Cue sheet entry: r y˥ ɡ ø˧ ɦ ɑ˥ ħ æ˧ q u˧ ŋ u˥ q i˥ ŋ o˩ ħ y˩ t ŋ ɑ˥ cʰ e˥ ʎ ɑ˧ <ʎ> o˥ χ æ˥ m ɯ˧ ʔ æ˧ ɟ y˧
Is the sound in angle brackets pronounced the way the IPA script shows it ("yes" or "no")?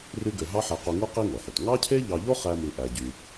yes